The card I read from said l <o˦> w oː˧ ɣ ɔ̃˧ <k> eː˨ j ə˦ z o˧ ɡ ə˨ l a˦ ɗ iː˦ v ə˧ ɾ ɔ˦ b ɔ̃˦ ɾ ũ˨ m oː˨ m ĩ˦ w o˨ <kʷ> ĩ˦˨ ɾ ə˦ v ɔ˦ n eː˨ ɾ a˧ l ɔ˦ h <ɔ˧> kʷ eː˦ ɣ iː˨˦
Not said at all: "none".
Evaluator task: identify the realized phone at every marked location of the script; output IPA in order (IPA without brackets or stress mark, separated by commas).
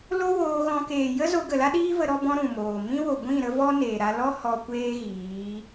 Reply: o˦, k, ɡʷ, ɔ˧